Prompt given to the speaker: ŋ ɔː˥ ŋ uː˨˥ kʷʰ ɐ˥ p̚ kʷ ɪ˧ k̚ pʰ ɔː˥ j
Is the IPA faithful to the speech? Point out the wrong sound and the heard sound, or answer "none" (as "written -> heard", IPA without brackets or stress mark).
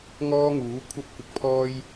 none